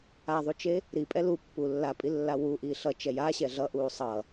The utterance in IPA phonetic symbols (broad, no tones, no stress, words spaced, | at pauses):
aðˤut͡ʃe | ɾipʼɛ lupːu lːapʼilːa wuʔiː ɬʌt͡ʃɛ jaɕɛ ɮʌʔuː sˤʌ